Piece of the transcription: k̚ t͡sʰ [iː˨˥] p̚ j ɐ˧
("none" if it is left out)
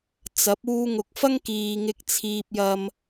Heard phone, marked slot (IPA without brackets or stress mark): iː˧